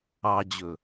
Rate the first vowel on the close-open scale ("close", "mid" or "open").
open